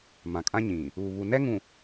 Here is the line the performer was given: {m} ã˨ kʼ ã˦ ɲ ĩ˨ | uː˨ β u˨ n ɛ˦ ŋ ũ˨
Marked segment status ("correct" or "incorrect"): correct